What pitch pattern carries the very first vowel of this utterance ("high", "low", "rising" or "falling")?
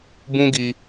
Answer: high